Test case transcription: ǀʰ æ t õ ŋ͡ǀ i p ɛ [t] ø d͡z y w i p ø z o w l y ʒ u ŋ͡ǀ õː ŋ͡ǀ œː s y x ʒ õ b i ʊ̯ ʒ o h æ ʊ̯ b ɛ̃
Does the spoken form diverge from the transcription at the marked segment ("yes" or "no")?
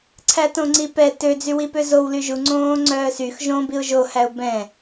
no